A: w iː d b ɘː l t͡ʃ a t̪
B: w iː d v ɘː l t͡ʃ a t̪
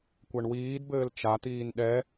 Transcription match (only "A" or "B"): A